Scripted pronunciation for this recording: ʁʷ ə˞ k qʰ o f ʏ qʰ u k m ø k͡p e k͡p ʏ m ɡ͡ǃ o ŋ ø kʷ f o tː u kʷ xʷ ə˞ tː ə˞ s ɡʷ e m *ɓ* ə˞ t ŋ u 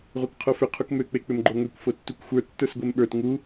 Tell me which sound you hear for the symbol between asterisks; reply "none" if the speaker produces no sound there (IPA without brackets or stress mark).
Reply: ɓ